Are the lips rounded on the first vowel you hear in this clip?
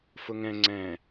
yes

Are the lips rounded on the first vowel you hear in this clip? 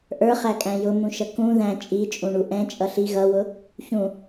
no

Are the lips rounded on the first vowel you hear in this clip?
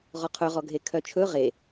yes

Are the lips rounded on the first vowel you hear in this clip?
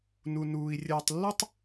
yes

